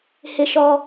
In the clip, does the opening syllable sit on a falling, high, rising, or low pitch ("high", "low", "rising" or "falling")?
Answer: low